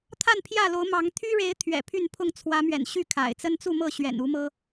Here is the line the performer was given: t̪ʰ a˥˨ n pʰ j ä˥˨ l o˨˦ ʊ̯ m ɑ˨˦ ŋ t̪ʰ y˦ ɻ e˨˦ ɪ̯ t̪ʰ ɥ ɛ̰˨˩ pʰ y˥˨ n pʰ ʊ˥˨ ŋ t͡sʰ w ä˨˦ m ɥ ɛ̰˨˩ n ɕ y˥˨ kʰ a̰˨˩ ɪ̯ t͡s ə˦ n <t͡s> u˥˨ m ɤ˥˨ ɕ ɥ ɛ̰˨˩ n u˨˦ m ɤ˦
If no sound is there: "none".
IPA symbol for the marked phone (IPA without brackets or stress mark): t͡s